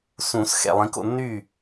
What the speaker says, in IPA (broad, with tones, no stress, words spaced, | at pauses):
sũ˨˩˦s xɛ̰˨lˠĩ˨˦ko̰˥˨ nːy˥˨